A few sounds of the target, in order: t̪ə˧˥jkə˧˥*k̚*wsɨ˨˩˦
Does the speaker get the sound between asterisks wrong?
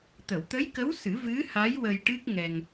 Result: yes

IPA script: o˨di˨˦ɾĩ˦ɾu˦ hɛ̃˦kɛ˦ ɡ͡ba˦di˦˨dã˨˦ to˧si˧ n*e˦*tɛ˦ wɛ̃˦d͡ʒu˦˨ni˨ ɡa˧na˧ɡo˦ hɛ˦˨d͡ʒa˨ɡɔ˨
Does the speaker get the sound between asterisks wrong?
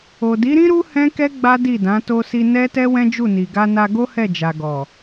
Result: yes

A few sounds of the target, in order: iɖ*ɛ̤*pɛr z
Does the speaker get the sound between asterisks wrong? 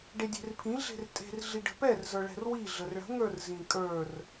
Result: yes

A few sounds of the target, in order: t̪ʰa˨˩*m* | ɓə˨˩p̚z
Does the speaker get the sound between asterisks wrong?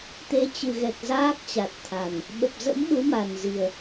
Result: yes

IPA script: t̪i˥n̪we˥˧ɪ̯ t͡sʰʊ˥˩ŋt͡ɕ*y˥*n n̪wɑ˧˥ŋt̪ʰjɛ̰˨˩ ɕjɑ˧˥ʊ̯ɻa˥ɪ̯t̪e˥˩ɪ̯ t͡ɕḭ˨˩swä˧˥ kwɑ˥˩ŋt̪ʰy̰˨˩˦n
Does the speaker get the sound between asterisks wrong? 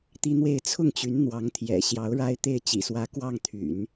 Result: yes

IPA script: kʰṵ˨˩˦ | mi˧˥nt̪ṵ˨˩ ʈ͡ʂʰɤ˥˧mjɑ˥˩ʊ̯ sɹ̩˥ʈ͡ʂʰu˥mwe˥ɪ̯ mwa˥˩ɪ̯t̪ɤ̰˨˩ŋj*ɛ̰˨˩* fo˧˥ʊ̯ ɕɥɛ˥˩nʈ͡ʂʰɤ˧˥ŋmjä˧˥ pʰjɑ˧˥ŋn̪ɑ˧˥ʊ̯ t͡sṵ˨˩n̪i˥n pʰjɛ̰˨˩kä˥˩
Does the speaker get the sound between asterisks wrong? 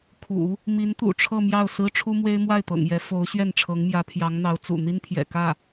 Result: yes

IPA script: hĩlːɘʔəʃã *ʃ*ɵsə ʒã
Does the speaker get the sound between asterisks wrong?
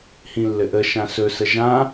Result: yes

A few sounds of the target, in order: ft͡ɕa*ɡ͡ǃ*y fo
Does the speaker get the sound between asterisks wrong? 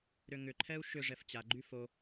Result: no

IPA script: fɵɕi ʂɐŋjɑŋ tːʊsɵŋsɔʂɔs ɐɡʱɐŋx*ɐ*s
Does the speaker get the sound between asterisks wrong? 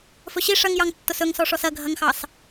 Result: yes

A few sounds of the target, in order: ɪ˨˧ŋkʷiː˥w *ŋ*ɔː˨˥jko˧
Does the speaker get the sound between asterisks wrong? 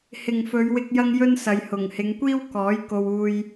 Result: yes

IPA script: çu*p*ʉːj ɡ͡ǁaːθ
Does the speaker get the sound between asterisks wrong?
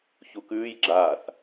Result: yes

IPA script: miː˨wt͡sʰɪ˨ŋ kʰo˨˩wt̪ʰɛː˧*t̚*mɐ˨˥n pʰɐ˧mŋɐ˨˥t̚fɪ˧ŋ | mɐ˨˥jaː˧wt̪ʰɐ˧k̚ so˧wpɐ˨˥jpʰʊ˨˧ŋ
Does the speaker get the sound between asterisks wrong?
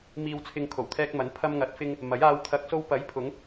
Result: yes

